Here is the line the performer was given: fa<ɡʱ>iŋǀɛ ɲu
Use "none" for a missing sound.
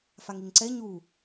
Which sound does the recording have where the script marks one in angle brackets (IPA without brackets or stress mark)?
ŋ